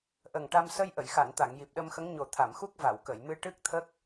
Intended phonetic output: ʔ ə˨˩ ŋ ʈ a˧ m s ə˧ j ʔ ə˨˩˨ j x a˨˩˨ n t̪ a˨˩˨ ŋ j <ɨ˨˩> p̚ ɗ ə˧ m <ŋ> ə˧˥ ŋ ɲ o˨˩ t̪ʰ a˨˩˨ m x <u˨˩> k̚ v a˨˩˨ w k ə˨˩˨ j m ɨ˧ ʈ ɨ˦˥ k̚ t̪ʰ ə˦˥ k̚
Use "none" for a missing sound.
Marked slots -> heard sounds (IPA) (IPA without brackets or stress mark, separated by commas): i˨˩, x, u˦˥